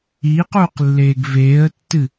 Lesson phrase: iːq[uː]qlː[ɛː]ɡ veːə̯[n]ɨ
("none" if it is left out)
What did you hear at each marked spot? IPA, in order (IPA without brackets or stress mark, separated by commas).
uː, eː, tː